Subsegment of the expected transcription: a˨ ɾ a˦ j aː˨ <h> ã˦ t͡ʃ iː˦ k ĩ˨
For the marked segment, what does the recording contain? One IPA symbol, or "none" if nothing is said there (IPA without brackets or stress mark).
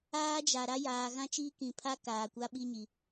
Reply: ɣ